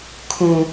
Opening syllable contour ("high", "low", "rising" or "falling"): high